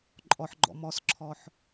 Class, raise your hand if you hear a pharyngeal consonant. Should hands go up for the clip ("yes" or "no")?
yes